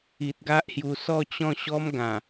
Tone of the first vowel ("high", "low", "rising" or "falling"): low